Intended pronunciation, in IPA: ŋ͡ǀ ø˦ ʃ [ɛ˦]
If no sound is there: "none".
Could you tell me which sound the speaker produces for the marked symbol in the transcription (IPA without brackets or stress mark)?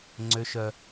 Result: œ˦